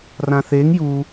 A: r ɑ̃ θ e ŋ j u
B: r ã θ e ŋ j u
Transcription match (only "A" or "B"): B